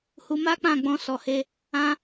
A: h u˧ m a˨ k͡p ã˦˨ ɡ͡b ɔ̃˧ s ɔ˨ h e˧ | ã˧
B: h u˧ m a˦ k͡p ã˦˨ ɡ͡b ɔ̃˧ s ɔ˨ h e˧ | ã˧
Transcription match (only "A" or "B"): B